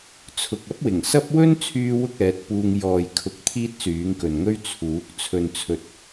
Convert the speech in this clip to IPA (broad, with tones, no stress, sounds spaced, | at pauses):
t͡sʰ ʊ˨ k̚ ɐ˥ p̚ w ɪ˨˩ ŋ s ɐ˥ p̚ w ɵ˥ n t͡sʰ yː˧ w ʊ˧ k̚ ɛː˨˥ t̚ p uː˧ ŋ j ɔː˨ j kʰ ʊ˨˥ k̚ t̪ʰ iː˥ t̚ s yː˨˥ ŋ k ɵ˨ n ŋ ɵ˥ ɥ t͡sʰ uː˨˥ k̚ t͡sʰ ɵ˨ n t͡sʰ ɵ˨ t̚